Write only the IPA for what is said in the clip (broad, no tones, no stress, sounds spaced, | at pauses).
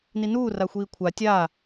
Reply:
n i n uː r a xʷ iː kʷʰ a tʲ a